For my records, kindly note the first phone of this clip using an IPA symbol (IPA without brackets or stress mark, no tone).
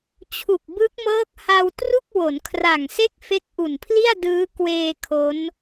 t͡ɕʰ